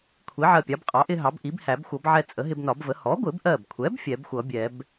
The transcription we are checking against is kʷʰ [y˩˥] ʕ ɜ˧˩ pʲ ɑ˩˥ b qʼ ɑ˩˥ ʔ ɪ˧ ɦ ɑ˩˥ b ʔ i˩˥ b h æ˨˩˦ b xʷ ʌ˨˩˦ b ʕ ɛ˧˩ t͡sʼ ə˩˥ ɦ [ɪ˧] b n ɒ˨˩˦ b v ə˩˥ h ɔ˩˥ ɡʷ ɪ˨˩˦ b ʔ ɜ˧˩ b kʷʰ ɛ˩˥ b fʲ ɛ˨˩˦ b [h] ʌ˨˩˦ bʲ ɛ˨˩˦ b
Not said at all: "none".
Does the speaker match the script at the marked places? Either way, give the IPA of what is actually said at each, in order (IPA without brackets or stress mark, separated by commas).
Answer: i˩˥, ɪ˧, xʷ